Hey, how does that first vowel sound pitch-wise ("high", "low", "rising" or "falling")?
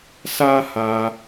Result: high